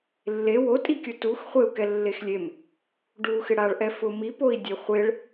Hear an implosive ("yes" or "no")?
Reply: no